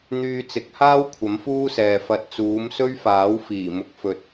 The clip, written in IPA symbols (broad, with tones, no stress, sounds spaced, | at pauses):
n̪ yː˧ t͡s ɪ˨˥ k̚ h aː˥ w kʷʰ ɐ˨˥ m f uː˥ s ɛː˨ f ɐ˨˥ t̚ t͡s uː˨˧ m s ɵ˥ ɥ f aː˨˥ w f iː˨˩ m ʊ˨˥ k̚ f ɵ˧ t̚